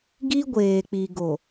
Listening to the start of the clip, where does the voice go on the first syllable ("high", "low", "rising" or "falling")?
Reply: high